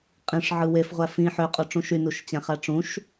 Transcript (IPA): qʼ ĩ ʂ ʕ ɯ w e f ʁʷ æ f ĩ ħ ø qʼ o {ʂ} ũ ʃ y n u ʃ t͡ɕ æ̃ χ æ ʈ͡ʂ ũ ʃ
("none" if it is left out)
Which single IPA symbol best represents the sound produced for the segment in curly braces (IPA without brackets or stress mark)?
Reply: ʈ͡ʂ